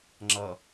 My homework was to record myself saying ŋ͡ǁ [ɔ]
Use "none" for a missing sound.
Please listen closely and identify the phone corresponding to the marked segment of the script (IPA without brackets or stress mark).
ʌ